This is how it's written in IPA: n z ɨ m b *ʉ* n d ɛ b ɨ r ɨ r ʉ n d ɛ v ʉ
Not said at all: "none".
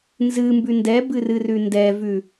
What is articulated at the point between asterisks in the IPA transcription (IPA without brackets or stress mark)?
ʉ